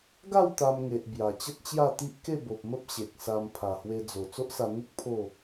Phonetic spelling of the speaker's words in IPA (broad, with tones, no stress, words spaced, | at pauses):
ɡa˥˧w t̪a˧mŋe˨ʔ bja˨˩t͡ɕə˦t̚t͡ɕja˥˧ t̪i˦ʔke˥˧bo˨p̚mə˦p̚ ɕe˨k̚sa˧m pʰa˨˩hwe˧ d͡zo˨˩ t͡so˦ʔsa˧ n̪u˦k̚ pʰo˥˧